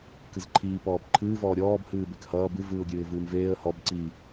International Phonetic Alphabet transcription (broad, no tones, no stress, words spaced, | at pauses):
kɨzǃʰiː pɔːpǃʰɨː vɔːɾʲɔːb hɨːbekhʌː bɨvɨːʊ̯ɡʲɨːɪ̯ vɨːmveːə̯ hɔb ǀi